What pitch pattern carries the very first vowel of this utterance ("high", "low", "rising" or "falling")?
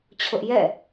high